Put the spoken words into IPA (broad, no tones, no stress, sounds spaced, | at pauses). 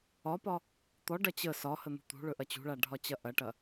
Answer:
ɒ p ɒ | t̪ ɔ ɖ ɐ t͡ɕ ə s ɒ h ə n̪ ṳ t̪ ṳ ɭ ɵ ʔ ɐ t͡ɕ ṳ ɭ a ɖʱ ɒ t͡ɕ ɐ ʔ ɐ ʈ ɐ